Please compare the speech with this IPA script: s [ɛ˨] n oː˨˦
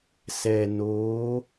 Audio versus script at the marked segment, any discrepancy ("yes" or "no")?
no